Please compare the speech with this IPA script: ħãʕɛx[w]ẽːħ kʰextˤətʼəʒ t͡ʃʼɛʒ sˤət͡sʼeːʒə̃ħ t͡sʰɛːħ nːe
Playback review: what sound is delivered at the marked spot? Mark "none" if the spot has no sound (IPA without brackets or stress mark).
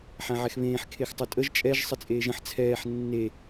β